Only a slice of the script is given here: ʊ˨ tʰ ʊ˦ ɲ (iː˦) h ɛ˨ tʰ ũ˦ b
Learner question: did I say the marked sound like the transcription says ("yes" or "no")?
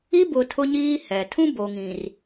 yes